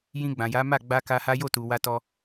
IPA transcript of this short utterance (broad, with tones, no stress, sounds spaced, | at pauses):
j ĩ˧ ɡ͡b ã˨ j a˨˦ m a˦˨ ɡ͡b a˧ k a˧ h a˦ j o˦˨ t u˨ w a˧ t ɔ˧